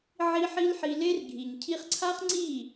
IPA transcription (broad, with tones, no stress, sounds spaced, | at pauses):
ʕ i˦ ħ i˦ l ħ i˧ l e˦ r ɡʱ i˨ ɲ cʰ i˧ χ ǀʰ a˦ χ ŋ͡ǀ i˦˨